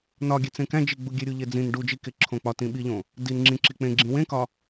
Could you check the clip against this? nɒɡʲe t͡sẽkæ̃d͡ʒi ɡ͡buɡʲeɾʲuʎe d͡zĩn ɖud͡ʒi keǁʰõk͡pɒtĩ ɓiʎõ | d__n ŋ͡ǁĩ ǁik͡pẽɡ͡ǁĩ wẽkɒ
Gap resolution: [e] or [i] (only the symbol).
i